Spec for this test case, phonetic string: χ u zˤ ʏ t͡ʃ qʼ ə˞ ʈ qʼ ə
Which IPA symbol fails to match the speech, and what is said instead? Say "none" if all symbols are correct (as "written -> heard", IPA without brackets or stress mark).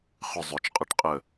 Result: u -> ʏ